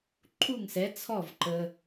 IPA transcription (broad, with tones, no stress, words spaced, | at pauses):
ǃʰu˥˩ŋsɛ˩˥ t͡sʰɔ˥˩vǃə˨